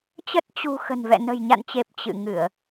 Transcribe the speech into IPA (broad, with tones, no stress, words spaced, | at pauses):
t͡ɕə˦˥t̚ t͡ɕṳ˨˩ xə̤˨˩nvɛ̰˧˨ nə̤˨˩jɲa̰˧˨nt͡ɕe˨˩p̚ t͡ɕɨ̰˧˨ŋɨ˧˩˨ə̯